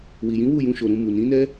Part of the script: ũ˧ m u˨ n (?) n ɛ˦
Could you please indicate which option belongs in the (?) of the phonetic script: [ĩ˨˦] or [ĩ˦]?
ĩ˨˦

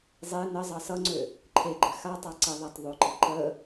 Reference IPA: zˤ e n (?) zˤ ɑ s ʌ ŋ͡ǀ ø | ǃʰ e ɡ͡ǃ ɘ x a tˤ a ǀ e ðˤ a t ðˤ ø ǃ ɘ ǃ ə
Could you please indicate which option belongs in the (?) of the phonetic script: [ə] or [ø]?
ə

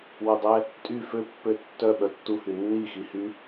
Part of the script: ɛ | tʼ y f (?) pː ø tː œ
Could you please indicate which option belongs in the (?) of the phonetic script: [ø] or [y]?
ø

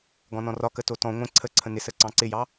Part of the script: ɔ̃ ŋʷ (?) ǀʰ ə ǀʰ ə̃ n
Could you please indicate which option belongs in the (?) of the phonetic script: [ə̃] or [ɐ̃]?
ə̃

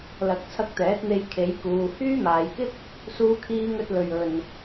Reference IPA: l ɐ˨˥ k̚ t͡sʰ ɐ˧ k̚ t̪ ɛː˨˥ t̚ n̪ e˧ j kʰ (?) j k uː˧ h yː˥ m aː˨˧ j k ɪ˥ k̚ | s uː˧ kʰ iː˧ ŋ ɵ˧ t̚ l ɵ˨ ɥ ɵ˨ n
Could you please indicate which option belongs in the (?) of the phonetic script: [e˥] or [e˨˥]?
e˨˥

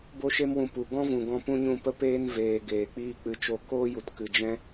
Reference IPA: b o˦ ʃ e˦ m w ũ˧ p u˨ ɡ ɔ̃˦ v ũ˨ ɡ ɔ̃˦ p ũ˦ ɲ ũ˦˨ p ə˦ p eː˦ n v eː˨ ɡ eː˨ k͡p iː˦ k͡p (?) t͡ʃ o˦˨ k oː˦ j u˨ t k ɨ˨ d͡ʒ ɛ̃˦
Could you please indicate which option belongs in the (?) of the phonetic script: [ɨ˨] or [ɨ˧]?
ɨ˧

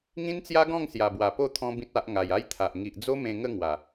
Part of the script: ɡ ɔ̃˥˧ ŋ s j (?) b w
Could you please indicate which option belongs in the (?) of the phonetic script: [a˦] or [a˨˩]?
a˨˩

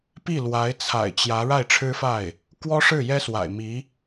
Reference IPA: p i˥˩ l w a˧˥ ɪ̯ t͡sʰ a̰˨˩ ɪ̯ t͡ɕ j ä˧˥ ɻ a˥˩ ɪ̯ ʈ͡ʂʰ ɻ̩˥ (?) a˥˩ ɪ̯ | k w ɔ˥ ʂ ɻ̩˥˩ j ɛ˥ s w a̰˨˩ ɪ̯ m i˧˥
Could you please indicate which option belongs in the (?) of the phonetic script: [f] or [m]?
f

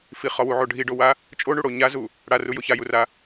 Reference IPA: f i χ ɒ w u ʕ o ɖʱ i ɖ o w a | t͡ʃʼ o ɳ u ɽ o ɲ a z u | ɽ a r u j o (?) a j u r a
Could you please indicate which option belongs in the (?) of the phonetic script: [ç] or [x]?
ç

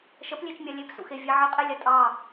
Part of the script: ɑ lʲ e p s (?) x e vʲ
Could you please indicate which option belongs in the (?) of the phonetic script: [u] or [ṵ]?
ṵ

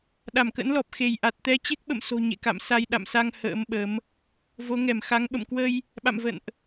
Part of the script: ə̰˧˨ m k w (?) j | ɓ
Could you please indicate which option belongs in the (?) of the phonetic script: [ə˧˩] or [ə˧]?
ə˧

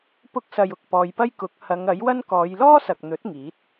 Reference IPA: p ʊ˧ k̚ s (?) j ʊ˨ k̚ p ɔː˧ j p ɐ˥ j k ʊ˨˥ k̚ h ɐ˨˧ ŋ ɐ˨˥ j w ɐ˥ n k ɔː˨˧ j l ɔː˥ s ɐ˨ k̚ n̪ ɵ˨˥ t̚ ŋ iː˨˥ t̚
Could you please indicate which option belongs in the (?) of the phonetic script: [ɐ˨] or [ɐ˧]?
ɐ˨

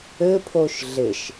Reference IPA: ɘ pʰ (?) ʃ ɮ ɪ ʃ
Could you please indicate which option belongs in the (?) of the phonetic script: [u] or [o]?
o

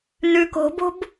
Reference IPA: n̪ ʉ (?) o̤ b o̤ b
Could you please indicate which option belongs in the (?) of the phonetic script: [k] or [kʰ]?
k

